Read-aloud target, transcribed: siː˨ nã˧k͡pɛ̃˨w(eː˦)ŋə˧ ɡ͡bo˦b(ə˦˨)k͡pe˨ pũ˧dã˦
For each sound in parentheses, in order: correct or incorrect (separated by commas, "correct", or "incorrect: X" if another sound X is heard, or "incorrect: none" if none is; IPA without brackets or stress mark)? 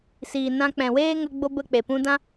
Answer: correct, correct